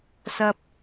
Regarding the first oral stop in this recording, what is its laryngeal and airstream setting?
plain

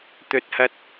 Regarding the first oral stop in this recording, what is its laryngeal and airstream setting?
plain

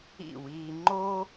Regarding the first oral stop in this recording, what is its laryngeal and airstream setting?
click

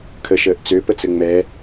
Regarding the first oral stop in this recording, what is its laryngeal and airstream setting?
aspirated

